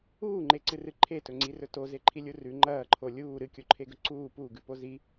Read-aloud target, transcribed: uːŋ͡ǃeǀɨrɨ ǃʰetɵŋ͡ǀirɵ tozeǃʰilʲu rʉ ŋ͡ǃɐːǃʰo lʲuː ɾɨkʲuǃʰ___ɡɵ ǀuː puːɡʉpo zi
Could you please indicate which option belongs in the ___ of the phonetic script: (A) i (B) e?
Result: B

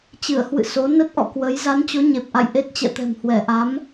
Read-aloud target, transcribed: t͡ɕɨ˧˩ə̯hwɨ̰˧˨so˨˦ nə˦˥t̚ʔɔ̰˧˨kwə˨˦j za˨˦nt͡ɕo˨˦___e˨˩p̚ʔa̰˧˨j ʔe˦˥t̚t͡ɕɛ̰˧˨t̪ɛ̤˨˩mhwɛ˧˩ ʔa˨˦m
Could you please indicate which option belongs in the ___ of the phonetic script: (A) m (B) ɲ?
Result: B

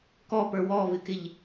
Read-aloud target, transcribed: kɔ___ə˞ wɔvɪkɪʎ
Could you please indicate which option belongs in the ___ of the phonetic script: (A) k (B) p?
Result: B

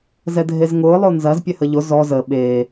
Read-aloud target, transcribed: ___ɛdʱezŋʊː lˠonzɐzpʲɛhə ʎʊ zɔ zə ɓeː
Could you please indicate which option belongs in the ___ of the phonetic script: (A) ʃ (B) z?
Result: B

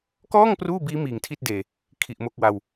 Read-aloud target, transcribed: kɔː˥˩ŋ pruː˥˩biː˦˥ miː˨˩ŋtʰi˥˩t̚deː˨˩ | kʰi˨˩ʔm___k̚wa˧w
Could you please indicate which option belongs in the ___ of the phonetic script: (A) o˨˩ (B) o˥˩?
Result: B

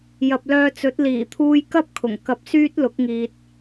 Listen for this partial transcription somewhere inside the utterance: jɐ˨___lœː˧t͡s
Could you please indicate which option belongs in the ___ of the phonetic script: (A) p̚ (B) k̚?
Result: A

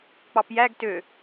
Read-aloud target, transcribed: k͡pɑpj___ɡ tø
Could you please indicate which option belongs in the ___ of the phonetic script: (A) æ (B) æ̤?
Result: A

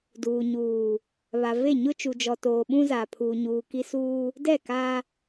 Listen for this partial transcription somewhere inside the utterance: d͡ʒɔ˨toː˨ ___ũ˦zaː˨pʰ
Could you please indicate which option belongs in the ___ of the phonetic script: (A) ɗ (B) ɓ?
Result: B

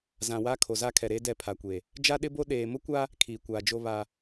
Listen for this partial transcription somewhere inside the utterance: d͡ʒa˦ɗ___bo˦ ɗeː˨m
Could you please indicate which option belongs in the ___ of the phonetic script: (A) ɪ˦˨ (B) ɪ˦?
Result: B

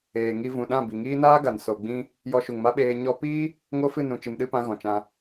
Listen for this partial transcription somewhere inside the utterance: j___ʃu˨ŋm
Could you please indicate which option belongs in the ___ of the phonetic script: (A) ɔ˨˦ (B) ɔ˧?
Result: B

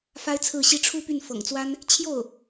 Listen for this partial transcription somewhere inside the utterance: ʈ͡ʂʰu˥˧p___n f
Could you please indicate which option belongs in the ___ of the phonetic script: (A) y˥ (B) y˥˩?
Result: B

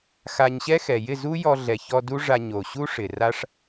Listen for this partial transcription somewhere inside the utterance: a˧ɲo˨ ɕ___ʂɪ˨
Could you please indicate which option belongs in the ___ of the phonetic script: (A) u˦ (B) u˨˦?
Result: A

